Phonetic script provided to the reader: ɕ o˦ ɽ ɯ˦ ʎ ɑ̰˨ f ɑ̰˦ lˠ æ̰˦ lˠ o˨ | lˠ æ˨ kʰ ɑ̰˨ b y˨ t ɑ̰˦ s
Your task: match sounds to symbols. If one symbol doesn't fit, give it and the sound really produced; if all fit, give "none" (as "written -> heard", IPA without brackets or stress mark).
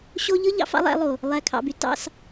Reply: ɽ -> ʎ